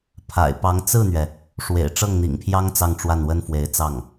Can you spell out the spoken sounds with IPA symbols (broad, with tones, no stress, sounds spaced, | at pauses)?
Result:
pʰ a̰˨˩ ɪ̯ p ɑ˧˥ ŋ t͡s ɹ̩˥˩ n̪ ɥ ɛ˩ | ʂ w ḛ˨˩ ɪ̯ ʈ͡ʂ ɤ˥˩ ŋ n̪ ḭ˨˩ ŋ pʰ j ɑ˥ ŋ t͡s ɑ˥˧ ŋ ʈ͡ʂ w a˥˩ n w ə˥ n f w e˧˥ ɪ̯ t͡s ɑ˥˩ ŋ